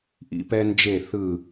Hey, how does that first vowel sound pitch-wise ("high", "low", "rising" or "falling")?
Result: high